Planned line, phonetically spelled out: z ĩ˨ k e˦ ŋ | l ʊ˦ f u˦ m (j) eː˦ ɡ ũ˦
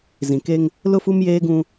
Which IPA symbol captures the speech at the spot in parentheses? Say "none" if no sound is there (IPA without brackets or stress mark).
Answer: j